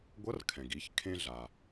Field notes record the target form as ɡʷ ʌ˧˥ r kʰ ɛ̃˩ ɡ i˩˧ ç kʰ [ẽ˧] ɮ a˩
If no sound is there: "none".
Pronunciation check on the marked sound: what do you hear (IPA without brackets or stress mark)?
ẽ˧